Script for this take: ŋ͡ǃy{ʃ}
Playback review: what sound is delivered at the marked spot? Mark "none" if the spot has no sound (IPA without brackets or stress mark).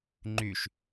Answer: ʃ